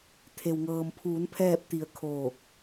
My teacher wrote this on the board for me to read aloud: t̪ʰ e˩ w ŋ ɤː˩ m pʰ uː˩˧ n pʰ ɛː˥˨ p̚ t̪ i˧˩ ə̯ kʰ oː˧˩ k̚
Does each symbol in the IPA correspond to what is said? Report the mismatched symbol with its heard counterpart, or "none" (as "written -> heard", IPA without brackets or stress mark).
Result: none